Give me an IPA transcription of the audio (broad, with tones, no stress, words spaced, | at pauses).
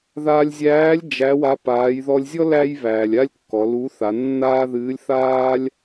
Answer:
ðaː˧lʲzʲæː˧˥lʲ d͡ʒæ˧˥wa˧˥ paː˩˧jðɔ˧lʲzʲɔ˥ læ˥jβæː˩lʲ a˥lʲkːɔ˩˧lu˧˥ θa˩˧nːaː˥ðɨː˧˥lʲ θaː˥lʲ